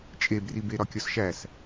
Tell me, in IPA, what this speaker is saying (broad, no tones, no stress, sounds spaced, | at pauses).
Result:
t͡ʃʼ e b r i b e ɾ ɒ kʲ ɒ s ʃ æ s